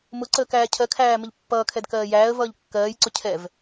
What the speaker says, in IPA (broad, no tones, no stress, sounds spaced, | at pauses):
m ʊ ǀ əː k æː cʰ ɜ kʰ æː m ə ʎ pː ʌː kʰ ɛ d k ɜː j æː ə̯ v ʌː ʎ kː ɜː j ǀ ʊ cʰ ɛ v